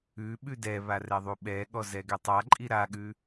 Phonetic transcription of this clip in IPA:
ʉ ɓ ʉ d ɛ β a r ɛ ðˤ u ɓ ɛ ɠ ɔ z ɛ ɡ ɛ tˤ a ǃʼ i ɾ a ɠ ʉ

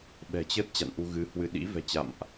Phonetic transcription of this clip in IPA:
ɓ ɛ̤˨˩ t͡ɕ ə˦˥ t̚ t͡ɕ a̰˧˨ n ʔ u˧ ɣ ɨ˨˦ h w ɨ˧ ɗ ḭ˧˥ v ɛ̤˨˩ t͡ɕ a̰˧˨ m ʔ

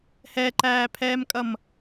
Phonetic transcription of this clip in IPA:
h ɛ ǃ æː pʰ ɛː m kʼ ʌ m

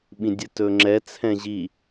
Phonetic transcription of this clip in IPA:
ɓ ĩ dʲ ɨ t ɵ ŋ͡ǁ ɛ t͡sʰ ɛ̃ ʑ i

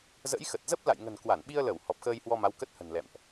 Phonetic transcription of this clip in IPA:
z ə̰˧˥ j x ə˨˩ t̚ z ə˦˥ p̚ l a̰˧˨ j ŋ ə̤˨˩ n k w a˧˩ n ɓ i˧ ə̯ l ə˧˩ w h ɔ˨˩ p̚ x əː˧ j h w ɔ˧ m a˨˦ w k ə˦˥ t̚ h ə̤˨˩ n l ɛ̰˧˨ m ʔ

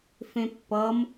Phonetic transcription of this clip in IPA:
f ẽ pː ʌ m

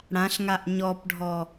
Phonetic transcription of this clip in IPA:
ɽ ã ɬ ŋ a ʔ ɲ ɔ p ɖʱ ɔ

